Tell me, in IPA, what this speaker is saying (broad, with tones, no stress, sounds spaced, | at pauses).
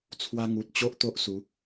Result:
t͡sʰ w a˧ ŋ u˨ t̚ t͡ɕ o˦ ʔ t̪ o˦ ʔ s u˨˦